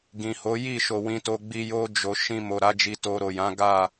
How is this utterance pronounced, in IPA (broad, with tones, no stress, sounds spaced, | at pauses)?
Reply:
ɡ ĩ˨ h o˨˦ j i˦˨ ʃ o˨ w ĩ˧ t o˧ ɡ͡b i˧ j o˦ d͡ʒ o˧ ʃ ĩ˧ m o˨ ɾ a˨˦ d͡ʒ i˧ t o˧ ɾ o˨ j ã˨˦ ɡ a˦˨